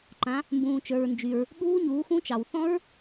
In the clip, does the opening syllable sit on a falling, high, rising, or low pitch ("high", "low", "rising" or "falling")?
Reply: rising